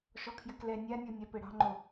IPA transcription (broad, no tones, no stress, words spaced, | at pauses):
ʃɔkʰjɘklɛ nʲanʲɔ nʲapɘɽɑ̤ŋ͡ǃo